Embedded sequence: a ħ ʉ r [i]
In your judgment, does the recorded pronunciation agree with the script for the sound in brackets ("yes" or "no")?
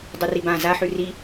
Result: yes